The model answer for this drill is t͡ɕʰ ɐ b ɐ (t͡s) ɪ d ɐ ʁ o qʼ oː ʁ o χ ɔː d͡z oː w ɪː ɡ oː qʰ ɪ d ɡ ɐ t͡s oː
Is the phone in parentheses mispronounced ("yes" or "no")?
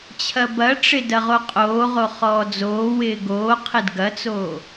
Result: yes